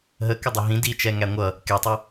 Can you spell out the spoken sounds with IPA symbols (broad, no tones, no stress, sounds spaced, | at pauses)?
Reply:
ɦ ə k ə dˤ ɪ ɦ ĩ d i t͡ʃ ɛ ŋ æ ŋʷ ʌ | k ɛ tˤ ʊ